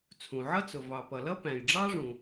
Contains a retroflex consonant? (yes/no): yes